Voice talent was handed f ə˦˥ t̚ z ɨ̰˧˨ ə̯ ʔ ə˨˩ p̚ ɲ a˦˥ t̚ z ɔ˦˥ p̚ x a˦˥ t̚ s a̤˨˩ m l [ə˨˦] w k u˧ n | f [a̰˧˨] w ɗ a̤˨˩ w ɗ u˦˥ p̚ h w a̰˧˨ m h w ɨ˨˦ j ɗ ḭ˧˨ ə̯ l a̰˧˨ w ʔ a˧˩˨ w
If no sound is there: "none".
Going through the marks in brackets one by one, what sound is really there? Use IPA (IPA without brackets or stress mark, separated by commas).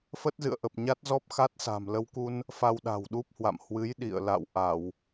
ə˧, a˧